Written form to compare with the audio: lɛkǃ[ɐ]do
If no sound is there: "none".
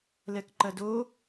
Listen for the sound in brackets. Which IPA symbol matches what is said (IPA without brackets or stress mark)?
ɐ